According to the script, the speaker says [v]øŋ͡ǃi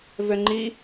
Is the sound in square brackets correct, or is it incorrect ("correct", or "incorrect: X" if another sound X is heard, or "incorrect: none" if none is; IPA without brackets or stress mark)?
correct